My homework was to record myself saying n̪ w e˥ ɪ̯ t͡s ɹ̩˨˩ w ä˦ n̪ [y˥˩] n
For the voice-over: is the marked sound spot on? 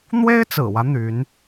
no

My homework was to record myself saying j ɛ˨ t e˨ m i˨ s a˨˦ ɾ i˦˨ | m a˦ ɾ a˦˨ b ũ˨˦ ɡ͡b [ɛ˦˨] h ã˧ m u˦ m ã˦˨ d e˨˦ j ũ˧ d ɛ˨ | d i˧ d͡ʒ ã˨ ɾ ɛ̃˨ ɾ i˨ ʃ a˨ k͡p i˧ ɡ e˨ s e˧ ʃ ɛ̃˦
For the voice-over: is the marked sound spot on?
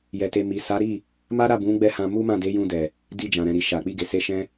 yes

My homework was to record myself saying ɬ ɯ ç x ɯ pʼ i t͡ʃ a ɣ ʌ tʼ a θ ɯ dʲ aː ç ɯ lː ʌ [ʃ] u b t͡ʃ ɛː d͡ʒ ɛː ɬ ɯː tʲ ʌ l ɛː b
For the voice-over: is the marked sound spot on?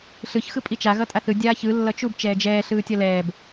no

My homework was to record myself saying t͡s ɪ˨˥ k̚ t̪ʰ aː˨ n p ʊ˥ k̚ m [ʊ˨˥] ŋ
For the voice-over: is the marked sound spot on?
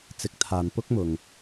no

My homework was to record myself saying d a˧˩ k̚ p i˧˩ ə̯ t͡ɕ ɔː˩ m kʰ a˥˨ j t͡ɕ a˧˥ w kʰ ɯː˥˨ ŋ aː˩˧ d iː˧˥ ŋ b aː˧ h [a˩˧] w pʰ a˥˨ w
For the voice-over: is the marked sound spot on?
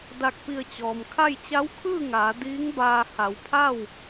yes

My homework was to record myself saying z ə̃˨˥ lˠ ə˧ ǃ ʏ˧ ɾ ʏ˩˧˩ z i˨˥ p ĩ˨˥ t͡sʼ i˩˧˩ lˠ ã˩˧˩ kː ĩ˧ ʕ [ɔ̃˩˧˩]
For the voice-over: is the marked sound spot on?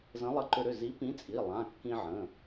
no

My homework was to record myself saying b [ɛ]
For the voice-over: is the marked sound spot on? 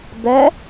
yes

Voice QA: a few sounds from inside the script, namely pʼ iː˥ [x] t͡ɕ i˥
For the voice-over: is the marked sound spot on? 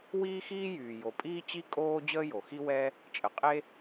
no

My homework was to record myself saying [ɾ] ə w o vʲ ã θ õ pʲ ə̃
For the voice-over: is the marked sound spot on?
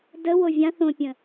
no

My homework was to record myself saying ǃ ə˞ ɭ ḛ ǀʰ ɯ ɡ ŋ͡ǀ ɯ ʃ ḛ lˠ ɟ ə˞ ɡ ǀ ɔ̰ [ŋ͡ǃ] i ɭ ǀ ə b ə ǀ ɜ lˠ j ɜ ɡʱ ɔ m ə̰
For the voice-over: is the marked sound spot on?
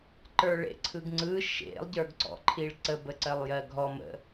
no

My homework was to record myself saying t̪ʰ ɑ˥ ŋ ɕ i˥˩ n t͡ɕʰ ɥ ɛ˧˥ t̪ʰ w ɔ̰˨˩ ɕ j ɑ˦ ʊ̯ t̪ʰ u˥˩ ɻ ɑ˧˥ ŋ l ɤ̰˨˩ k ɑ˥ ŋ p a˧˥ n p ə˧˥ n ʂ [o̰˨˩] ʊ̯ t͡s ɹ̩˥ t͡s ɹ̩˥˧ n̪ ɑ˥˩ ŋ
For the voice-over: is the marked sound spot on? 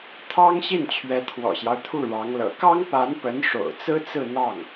yes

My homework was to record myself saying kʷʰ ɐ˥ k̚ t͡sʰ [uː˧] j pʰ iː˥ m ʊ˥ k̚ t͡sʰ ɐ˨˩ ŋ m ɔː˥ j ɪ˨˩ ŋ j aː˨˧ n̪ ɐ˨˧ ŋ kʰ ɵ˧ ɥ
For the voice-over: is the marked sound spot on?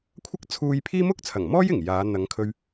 yes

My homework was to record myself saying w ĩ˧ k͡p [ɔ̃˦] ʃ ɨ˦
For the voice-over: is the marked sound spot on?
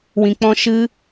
yes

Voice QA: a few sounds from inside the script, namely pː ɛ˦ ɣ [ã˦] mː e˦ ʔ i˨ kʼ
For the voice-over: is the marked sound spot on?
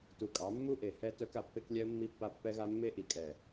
no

